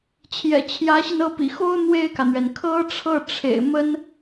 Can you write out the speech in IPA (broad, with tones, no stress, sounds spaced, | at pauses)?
t͡ɕʰ j ɛ̰˨˩ t͡ɕʰ j ä˧˥ ɕ i˧ n ɤ˥˩ p ḭ˨˩ x o˥ ʊ̯ n̪ w e˥˩ ɪ̯ k ä˩ n̪ ɥ ɛ˩ n kʰ ɤ˥ ʈ͡ʂʰ ɤ˥˩ ʈ͡ʂʰ ḛ˨˩ ɪ̯ m ə˥ n